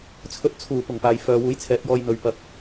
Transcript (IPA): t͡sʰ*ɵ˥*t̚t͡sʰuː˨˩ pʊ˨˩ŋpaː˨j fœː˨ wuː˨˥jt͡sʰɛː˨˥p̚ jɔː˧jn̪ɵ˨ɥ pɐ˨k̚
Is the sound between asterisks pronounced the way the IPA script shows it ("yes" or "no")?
no